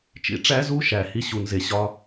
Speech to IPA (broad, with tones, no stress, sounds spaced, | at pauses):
t͡ʃ ḭ˧˥ ʈ͡ʂ æ˧˥ z u˧˥ ʃ æ˩ h i˧˥ ɕ u˩ n z e˩ ɕ ɒ˧˥